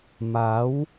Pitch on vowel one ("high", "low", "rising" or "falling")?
rising